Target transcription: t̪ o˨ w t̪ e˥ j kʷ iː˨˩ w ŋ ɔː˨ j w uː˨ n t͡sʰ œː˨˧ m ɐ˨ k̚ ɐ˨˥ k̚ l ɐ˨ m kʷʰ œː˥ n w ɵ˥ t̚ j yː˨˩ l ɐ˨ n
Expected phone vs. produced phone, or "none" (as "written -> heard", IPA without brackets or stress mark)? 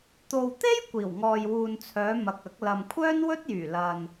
none